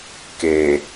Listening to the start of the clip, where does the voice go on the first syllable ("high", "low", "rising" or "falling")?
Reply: low